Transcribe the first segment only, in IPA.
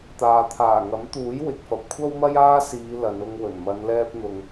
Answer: t̪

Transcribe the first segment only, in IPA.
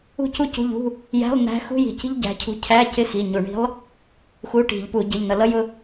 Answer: ṳ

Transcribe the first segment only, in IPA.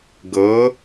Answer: ɡ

